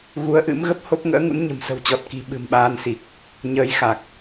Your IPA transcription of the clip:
ɣu˨˦ə̯ ʔɨ̰˧˥mɣə˦˥p̚ ho˦˥p̚ŋə̰ː˧˥ŋṵ˧˥n ɲə̤˨˩msə̤˨˩wt͡ɕɔ˨˩t̚ki̤˨˩ ɓɨ̤˨˩mɓaː˧nsi˨˩k̚ | ɲəː˧jxa˨˩k̚

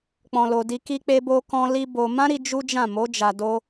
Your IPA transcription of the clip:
k͡pɔ̃˨lo˨ di˧ ki˧ k͡pe˧bo˧kɔ̃˧ li˦bo˧ mã˦ɾi˧ d͡ʒu˦d͡ʒã˦˨ mo˨˦ d͡ʒa˧do˦

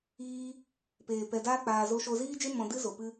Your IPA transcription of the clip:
iː˧ | peː˨ pɛ˧daː˦k͡paː˧ zo˧ʃo˧ziː˦d͡ʒe˦ mɔ̃˧dɨ˦ zo˨pɨ˦

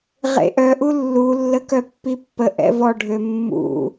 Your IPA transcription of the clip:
ʁḛʔœ ʔulːu lːəkœpːipːə ʔɛ̰vɔ ɖʱømːṵ

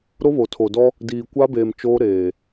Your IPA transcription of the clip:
ɾo˦βo˨tʰo˨dɔ˦ | diː˨kʷa˦beː˨m t͡ʃoː˦ ɾeː˨

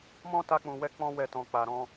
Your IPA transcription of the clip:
mɔ̃˦ta˧k͡pũ˨wɛ˧ k͡pɔ̃˦ wɛ˦˨ tɔ̃˨k͡pa˨ɾɔ̃˧

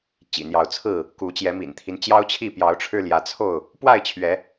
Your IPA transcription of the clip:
t͡ɕḭ˨˩n̪jɑ˨˦ʊ̯ t͡sʰɹ̩˥˨ | ku˨˦t͡ɕjɛ˨˦mḭ˨˩nt̪ʰi˦n t͡ɕjɑ˦ʊ̯ t͡ɕʰi˥˨ pjɑ˨˦ʊ̯ʈ͡ʂʰɻ̩˧ ljä˨˦t͡sʰo˥˨ʊ̯ | pwa˥˨ɪ̯t͡ɕʰɥɛ˨˦

